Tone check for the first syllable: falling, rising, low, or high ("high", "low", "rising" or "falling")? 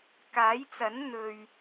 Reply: rising